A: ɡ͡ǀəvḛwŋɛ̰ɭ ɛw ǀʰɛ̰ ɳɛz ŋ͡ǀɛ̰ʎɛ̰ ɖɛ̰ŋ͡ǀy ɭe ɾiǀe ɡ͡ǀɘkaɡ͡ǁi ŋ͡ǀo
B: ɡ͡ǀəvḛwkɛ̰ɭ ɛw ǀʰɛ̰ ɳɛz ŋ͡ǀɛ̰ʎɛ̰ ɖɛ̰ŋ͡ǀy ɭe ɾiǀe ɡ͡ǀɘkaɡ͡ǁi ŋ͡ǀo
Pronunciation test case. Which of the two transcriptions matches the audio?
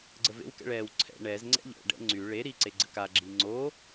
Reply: B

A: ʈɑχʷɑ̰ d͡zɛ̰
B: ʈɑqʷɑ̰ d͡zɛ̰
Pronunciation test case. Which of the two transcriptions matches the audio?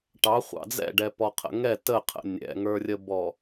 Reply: A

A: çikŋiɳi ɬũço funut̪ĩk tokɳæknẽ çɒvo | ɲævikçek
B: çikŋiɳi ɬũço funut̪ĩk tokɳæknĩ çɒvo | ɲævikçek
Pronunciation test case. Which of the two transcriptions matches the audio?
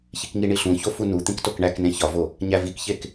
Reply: A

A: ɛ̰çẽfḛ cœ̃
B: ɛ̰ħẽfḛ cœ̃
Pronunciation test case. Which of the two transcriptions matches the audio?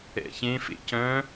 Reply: A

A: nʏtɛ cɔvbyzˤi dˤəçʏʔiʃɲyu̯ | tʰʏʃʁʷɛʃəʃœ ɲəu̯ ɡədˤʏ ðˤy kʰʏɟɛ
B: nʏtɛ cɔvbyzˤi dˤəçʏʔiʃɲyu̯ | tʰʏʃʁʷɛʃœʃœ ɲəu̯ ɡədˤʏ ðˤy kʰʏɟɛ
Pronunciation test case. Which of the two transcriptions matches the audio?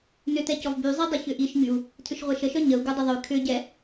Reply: A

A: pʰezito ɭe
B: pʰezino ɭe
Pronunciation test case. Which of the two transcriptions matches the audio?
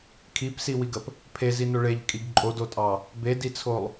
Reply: B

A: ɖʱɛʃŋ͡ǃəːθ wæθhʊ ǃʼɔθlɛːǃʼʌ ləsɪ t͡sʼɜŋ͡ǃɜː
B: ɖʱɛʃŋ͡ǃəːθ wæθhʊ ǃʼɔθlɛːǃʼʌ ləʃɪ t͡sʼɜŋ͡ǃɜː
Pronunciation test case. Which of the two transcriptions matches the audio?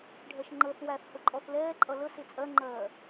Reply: A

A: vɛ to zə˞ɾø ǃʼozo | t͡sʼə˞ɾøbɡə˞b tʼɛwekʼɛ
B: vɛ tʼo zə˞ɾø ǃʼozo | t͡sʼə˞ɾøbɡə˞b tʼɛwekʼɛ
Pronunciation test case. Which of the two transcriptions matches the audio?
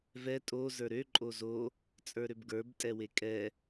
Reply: B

